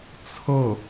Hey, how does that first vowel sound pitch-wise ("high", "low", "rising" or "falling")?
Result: falling